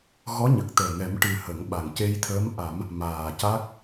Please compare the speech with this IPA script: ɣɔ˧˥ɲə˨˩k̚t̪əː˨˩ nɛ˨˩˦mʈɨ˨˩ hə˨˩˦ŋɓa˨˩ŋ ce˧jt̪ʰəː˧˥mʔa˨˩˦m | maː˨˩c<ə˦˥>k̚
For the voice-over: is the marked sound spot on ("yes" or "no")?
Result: no